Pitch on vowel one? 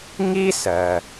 high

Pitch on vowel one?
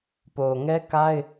low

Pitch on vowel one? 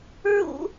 high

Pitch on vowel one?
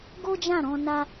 high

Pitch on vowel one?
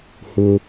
high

